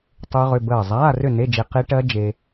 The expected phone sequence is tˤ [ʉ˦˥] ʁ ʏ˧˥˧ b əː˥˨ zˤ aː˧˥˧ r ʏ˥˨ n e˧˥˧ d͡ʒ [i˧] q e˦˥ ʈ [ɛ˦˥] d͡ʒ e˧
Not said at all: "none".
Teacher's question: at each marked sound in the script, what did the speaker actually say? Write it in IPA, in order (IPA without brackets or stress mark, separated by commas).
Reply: ʉ˦˥, e˧, ɜ˦˥